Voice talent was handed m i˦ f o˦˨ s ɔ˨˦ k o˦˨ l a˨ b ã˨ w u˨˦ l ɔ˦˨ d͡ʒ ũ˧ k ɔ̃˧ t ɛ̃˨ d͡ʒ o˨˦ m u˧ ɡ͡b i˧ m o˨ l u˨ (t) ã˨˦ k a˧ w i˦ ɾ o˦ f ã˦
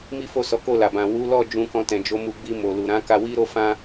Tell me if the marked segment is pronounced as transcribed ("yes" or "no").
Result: no